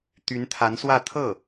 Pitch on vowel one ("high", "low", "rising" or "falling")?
rising